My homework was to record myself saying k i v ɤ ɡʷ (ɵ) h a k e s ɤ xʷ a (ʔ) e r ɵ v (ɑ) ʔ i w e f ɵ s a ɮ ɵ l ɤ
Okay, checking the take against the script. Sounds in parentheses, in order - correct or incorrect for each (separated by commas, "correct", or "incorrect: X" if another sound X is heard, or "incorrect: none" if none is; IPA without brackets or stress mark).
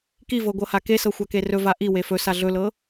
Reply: incorrect: ɤ, incorrect: k, incorrect: a